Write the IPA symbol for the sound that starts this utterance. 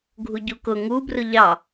ɡʱ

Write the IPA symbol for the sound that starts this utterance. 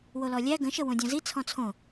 w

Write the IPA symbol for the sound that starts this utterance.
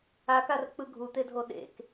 a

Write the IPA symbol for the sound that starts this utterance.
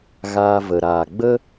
ɣ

